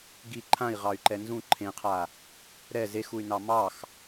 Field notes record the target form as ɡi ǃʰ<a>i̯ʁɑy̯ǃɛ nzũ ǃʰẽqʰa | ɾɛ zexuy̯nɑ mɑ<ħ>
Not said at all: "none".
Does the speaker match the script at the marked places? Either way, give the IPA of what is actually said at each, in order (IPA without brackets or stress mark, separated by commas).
ã, x